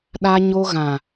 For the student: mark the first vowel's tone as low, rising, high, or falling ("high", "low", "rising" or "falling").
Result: high